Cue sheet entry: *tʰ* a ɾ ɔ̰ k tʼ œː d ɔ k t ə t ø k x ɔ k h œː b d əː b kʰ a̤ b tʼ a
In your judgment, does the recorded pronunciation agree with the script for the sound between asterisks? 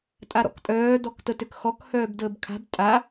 no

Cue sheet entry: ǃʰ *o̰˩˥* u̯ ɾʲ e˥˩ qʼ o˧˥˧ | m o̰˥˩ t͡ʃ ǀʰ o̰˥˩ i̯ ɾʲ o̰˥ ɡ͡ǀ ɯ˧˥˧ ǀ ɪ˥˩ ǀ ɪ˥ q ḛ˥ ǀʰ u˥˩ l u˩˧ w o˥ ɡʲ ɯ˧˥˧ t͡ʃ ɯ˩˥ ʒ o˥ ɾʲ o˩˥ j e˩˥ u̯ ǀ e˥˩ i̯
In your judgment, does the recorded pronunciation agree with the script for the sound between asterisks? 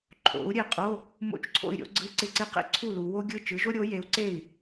yes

